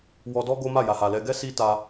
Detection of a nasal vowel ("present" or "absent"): absent